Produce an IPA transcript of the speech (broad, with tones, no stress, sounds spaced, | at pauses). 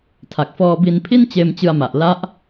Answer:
tʰ a˨˩ k̚ f ɔː˧ b i˧ n pʰ i˥˩ n t͡ɕ eː˧ m t͡ɕ ɯ˧ a̯ m a˨˩ ʔ l a˦˥ ʔ